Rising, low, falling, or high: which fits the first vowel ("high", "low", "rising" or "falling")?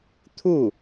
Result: falling